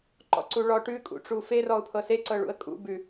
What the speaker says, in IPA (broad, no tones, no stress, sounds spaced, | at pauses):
ǃ ɔ̰ ǀ u ɭ ɔ ʈ ʉ kʼ ṵ ʈ͡ʂ u f e r ɔ ʊ̯ pʰ ɤ s e ǀ ɤ ɭ ṵ ə̯ kʼ ṵ b ʉ